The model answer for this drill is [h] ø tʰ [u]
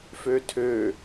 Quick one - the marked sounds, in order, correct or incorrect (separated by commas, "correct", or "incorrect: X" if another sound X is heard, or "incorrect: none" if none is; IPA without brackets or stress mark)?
incorrect: f, incorrect: ø